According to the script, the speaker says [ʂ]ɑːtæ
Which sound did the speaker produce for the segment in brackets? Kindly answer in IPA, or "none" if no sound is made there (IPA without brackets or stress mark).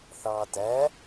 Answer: θ